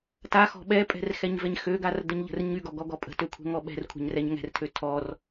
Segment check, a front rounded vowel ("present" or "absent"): present